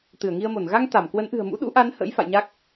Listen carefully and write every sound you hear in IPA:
t̪ ɨ˧˩ ə̯ ŋ i˧ ə̯ m o˧˩ n ɣ a˧ ŋ t̪ a˧˩ m k w ə˨˦ n ʔ ɨ̤˨˩ ə̯ m ṵ˧˥ ɗ ṵ˧˥ ʔ a˨˦ n h ə̰˧˥ j f a̰˧˨ j ɲ a˦˥ k̚

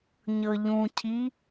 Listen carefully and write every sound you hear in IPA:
ɲ ɤ ʎ ũ cʰ i

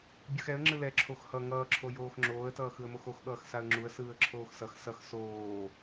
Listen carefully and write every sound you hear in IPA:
bʲ ɯ x ɛ ə̯ ŋ͡ǁ ɯ l ɛ ǁʰ o x h ʌ ŋ ʌː ǁʰ o j oː x ŋ͡ǁ oː ə̯ t ʌː x ɯ ə̯ m o x o x ɠ ʌː x s a ə̯ ŋ͡ǁ u ə̯ s ɯː ə̯ ǁʰ oː x s ʌ x s ʌ x s oː

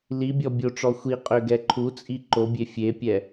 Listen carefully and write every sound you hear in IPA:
l i bʲ ɔ bʲ o ʈ͡ʂ ɔ xʷ i qʼ ø ɡ ɛ ǃʰ u t͡sʼ i ǃ o bʲ e fʲ e pʲ ɛ

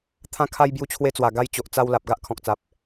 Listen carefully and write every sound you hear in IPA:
t̪ʰ ã˧ kʰ a˧ j b j u˧ t͡ɕʰ w e˧ t͡s w a˨˩ ɡ a˧ j t͡ɕ o˨ ʔ t͡s a˧ w l a˨ p̚ ɡ a˦ ʔ kʰ ɔ̃˨ k̚ t͡s a˨ p̚

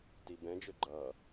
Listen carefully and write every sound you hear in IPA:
t i b ɛ̃ d͡ʒ ø ɡ͡ǃ ʌ

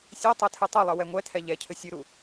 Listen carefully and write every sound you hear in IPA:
sʲ e tˤ ɛ tʰ ɨ tˤ u lˠ ɨ w ɛ ŋʷ ɛ tʰ ɛ ʎ ɛ cʰ ɘ sʲ ɨ ɾ u

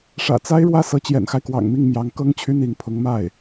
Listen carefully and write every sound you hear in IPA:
ʂ ä̰˨˩ t͡s a˥ ɪ̯ ɻ w ä˥˩ s ɤ˧˥ t͡ɕ j ɛ̰˨˩ n x a˦ ɪ̯ k w ɑ̰˨˩ ŋ m i˥˩ ŋ m j ɑ˧˥ ŋ k ɤ˥ ŋ t͡ɕʰ y˥ n̪ i˧˥ ŋ pʰ ʊ˧˥ ŋ m a˥˩ ɪ̯

